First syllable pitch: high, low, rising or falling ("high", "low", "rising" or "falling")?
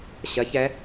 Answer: rising